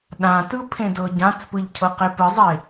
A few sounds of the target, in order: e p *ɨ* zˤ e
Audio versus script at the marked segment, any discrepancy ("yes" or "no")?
no